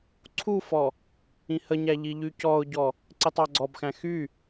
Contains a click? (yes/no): yes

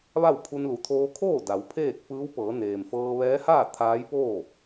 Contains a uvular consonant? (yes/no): no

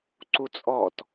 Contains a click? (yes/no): yes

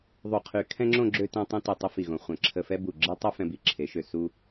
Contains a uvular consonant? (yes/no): yes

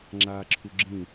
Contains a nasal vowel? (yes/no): yes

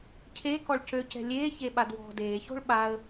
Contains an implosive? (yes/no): yes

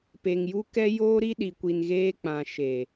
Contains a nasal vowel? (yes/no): yes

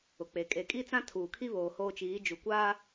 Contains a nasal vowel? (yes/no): yes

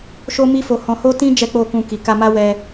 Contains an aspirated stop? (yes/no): no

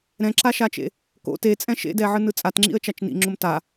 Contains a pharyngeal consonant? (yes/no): yes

